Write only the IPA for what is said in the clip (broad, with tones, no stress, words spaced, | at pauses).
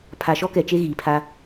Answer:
pʰa˨ʃɔ˦kɛ˨t͡ʃe˦ ɣiː˨pʰa˦